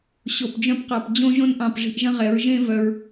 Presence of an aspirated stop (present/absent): absent